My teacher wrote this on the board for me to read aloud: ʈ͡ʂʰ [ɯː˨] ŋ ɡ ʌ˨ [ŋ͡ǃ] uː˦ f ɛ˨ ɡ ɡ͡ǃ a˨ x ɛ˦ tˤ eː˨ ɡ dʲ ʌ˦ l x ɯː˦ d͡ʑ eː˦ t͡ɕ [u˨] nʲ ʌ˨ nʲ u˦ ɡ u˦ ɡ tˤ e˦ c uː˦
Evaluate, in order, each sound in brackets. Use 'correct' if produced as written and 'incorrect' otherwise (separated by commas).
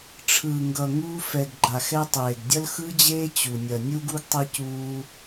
correct, incorrect, correct